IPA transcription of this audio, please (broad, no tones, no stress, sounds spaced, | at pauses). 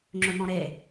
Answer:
ŋ͡ǁ ɵ n̪ ɔ̃ ɾ e